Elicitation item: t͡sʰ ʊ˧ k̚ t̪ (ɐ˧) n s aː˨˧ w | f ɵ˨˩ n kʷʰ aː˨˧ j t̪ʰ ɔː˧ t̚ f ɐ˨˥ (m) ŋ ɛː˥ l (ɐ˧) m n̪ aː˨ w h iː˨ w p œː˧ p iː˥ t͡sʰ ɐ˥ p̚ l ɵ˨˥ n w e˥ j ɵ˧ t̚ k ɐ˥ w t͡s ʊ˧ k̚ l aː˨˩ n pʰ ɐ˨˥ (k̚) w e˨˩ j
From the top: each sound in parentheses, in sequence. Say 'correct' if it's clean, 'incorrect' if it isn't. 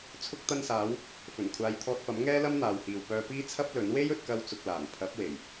correct, correct, incorrect: ɐ˥, incorrect: p̚

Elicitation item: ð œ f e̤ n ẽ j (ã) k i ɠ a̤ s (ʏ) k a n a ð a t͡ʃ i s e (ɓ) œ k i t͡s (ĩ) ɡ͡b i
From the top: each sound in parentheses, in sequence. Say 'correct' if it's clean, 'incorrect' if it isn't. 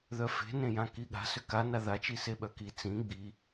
correct, correct, correct, correct

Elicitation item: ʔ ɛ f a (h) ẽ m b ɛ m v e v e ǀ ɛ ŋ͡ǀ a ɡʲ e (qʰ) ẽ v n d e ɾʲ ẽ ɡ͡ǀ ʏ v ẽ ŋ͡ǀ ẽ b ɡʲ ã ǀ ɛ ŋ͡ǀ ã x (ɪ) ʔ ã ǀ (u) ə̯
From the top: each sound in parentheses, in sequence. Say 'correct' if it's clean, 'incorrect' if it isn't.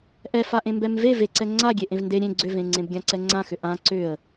incorrect: ʔ, incorrect: ʔ, incorrect: ʏ, incorrect: ʏ

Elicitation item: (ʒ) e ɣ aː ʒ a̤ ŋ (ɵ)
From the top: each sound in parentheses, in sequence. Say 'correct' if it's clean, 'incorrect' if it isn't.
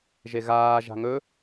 correct, correct

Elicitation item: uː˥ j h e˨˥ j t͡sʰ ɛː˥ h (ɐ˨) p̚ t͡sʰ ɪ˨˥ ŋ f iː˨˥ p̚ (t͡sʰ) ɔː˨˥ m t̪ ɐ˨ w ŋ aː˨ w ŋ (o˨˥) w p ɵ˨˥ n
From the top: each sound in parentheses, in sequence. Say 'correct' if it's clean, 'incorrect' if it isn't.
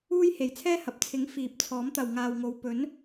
correct, correct, incorrect: o˨

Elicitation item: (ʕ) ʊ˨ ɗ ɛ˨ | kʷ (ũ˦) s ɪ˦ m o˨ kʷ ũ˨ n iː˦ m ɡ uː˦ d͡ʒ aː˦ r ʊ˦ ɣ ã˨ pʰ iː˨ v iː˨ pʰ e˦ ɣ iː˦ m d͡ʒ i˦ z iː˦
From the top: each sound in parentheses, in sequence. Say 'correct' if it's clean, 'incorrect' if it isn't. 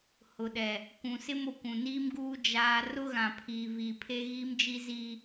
incorrect: h, incorrect: ũ˨

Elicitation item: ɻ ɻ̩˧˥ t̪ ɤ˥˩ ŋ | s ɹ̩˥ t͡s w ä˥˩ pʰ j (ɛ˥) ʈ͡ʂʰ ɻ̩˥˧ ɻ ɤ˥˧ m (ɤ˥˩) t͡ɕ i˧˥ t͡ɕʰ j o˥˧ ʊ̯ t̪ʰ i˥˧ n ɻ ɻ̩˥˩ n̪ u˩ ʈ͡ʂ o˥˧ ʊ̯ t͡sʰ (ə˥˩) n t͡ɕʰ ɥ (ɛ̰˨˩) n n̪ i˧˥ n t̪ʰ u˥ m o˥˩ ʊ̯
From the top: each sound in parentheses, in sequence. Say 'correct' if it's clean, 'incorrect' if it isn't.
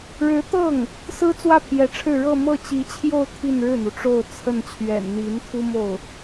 incorrect: ɛ˧˥, correct, correct, correct

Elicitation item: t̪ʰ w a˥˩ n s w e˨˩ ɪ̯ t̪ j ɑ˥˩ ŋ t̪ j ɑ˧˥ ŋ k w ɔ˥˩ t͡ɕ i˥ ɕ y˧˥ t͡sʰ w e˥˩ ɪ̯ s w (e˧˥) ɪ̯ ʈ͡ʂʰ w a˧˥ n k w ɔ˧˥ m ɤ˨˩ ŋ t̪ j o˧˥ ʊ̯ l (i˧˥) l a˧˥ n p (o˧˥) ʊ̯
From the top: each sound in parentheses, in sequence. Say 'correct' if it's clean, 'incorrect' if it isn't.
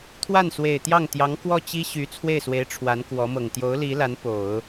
correct, correct, incorrect: o˨˩˦

